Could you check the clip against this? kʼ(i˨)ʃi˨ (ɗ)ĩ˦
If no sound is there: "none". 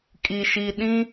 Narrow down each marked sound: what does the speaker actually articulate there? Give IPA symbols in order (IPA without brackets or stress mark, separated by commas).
i˨, ɗ